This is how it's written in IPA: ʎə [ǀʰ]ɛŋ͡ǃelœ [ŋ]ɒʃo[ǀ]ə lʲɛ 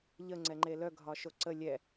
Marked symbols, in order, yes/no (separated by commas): no, no, yes